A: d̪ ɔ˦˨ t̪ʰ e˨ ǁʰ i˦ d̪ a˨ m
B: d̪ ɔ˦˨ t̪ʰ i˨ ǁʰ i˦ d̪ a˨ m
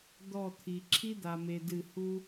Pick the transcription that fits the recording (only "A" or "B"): B